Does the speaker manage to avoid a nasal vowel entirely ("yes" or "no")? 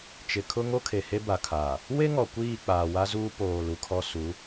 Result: yes